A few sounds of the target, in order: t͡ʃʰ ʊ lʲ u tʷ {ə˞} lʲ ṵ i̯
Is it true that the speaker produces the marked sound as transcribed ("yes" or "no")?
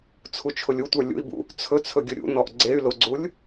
yes